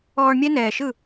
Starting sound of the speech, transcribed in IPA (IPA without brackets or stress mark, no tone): ɔː